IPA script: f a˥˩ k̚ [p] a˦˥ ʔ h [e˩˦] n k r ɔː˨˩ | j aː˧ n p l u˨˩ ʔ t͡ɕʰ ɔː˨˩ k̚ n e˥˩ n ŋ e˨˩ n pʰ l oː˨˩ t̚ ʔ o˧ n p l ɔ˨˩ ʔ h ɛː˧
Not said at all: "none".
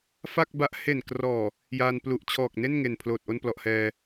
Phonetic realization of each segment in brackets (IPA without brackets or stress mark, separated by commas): b, e˨˩